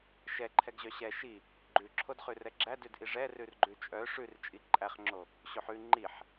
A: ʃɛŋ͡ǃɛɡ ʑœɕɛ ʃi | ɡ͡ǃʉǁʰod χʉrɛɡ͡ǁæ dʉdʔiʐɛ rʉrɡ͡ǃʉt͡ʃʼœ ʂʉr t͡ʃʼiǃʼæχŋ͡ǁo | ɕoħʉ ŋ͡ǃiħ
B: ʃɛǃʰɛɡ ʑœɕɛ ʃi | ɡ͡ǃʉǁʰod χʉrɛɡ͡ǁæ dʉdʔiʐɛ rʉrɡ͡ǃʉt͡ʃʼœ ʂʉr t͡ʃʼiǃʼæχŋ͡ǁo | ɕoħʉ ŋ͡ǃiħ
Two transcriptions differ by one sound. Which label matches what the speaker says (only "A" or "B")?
B